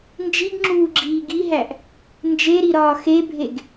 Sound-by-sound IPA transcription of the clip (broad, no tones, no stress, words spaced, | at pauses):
nd͡ʒiɡŋ͡ǁuːɡ͡ǁiː ɡiɦæʔ | nd͡ʒeɾiɾɒː xebʱeɡ